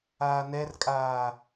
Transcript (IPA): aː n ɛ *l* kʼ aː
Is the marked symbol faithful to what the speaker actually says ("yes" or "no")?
no